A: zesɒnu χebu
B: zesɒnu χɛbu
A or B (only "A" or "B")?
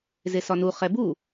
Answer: B